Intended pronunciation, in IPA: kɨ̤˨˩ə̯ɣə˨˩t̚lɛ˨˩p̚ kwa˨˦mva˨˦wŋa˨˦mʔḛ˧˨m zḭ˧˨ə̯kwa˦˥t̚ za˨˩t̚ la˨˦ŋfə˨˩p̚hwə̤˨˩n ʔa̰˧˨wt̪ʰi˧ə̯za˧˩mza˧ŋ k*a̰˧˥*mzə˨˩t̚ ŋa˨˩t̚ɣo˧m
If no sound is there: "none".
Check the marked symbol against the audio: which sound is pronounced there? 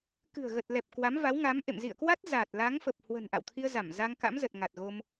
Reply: a̰˧˥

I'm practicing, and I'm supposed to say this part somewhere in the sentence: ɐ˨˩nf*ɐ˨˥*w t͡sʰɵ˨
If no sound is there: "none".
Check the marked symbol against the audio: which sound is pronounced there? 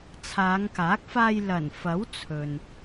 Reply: ɐ˨˥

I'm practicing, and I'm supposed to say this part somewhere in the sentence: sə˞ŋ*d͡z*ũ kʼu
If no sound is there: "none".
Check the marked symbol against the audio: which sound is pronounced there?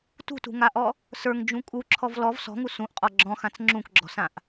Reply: d͡ʒ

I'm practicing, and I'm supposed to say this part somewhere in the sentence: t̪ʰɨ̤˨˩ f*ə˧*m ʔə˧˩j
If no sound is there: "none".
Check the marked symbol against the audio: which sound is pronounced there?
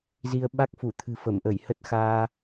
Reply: ə˧˩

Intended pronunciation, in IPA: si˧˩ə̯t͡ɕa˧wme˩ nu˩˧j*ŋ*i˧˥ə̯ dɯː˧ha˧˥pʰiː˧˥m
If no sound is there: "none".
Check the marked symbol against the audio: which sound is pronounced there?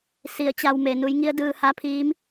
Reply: ŋ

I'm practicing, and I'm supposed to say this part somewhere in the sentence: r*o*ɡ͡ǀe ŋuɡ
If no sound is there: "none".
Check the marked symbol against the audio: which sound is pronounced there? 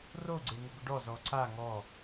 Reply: o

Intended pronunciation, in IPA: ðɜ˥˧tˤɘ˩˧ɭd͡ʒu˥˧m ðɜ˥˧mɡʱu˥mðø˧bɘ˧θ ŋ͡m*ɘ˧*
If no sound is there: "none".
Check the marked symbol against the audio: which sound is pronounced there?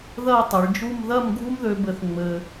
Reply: ɘ˧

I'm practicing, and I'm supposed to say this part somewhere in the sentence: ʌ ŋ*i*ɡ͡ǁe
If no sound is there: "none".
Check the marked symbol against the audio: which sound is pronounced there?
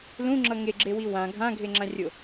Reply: e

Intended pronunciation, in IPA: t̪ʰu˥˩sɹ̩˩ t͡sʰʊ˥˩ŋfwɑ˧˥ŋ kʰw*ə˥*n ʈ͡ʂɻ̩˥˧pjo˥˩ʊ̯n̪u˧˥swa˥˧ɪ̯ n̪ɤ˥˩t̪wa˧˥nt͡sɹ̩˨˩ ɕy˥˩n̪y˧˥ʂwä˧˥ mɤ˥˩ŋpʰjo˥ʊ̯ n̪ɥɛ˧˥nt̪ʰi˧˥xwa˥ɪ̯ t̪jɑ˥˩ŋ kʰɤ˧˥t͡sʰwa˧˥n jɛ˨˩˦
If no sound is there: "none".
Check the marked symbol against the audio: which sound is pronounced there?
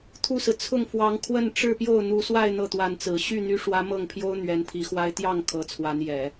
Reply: ə˥˧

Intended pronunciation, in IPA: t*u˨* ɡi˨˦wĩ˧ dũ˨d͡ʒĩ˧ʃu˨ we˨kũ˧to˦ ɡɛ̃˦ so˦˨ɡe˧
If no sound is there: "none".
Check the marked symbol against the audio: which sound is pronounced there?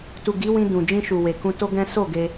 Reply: u˨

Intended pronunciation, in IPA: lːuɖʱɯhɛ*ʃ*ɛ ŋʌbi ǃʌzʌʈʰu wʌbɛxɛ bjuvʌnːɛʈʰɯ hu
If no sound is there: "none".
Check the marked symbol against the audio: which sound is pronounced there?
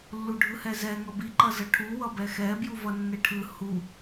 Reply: z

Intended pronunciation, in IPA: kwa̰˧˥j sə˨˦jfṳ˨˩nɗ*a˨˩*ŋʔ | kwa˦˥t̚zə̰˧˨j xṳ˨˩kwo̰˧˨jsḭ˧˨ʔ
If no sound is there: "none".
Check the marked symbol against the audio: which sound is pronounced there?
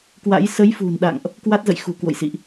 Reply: a̰˧˨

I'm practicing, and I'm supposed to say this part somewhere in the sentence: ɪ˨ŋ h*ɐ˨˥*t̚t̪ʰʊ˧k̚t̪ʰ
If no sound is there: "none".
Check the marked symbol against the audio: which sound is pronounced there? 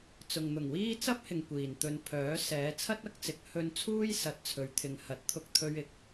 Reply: ɐ˨˥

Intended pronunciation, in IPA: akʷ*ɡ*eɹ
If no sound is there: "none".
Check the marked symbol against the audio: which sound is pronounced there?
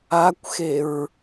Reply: x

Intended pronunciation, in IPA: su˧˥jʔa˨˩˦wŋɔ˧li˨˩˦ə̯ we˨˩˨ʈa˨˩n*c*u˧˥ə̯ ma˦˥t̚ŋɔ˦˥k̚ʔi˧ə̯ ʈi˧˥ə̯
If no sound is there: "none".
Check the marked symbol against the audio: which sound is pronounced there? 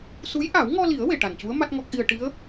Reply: c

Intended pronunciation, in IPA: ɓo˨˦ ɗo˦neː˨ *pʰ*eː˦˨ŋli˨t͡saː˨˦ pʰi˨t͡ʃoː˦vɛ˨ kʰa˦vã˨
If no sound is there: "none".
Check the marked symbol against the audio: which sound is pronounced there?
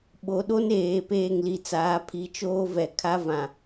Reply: p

